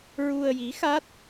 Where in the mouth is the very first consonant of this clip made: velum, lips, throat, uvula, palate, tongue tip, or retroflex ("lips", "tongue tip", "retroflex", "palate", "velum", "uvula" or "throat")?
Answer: tongue tip